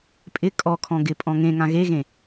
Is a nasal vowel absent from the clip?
no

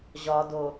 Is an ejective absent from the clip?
yes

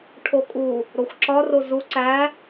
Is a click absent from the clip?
no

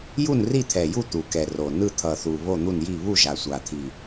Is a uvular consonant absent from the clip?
yes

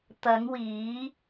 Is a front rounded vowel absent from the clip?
yes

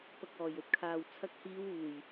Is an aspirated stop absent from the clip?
no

